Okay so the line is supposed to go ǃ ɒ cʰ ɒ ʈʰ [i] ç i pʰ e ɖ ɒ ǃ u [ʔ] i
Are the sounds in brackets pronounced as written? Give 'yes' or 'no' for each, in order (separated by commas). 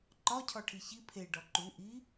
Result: yes, yes